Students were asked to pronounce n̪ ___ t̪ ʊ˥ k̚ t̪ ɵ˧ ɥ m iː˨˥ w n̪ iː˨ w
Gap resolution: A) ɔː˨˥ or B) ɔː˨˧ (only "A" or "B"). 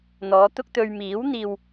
B